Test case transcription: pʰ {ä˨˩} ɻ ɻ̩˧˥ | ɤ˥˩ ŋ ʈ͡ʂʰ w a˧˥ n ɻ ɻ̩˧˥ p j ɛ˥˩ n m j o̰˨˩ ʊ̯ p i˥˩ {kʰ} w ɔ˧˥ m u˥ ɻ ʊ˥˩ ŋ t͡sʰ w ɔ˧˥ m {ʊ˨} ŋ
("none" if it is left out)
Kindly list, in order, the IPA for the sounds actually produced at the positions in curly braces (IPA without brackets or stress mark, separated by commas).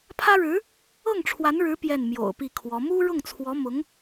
ä˥, kʰ, ʊ˧˥